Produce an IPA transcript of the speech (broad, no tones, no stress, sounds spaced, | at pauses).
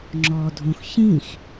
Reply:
ŋ͡ǁ ɔ dʱ õ x ç ĩ x